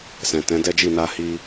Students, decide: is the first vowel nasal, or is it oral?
nasal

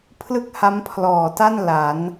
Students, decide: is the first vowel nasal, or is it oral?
oral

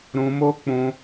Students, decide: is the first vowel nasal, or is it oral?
nasal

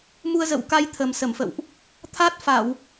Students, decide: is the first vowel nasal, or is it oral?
oral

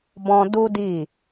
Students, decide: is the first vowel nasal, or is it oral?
nasal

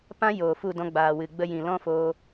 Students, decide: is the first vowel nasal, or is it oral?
nasal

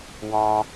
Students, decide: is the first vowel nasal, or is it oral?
nasal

